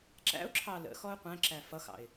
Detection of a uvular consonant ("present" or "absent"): present